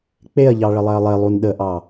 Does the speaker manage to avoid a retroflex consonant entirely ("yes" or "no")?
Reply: no